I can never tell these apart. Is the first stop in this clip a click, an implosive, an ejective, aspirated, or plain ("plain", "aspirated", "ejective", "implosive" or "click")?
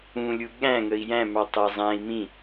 implosive